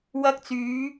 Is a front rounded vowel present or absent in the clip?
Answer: present